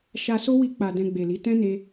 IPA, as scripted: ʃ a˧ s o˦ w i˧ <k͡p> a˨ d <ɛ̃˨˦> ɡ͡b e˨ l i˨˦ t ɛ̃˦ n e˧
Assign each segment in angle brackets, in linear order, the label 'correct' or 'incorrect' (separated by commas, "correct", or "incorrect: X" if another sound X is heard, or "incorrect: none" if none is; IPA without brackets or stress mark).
correct, incorrect: ɛ̃˧